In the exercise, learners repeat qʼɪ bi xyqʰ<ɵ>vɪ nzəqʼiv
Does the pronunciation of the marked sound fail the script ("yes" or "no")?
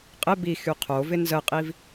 yes